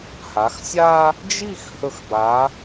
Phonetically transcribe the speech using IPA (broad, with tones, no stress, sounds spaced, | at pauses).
h a˩˧ x sʲ a˥ | d͡ʒ i˥˧ x h ɵ˧˩ x b a˩˧